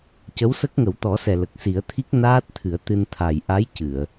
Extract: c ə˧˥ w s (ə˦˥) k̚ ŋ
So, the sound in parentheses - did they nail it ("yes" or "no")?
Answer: yes